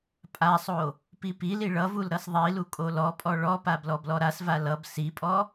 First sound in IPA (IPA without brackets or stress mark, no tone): pʼ